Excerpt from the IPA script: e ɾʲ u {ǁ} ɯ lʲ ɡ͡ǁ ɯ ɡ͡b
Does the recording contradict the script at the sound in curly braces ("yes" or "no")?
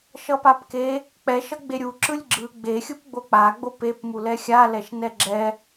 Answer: no